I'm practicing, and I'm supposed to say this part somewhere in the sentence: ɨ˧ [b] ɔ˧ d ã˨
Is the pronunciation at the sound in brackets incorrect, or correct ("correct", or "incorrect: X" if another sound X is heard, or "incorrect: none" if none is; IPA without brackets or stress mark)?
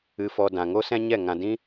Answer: incorrect: f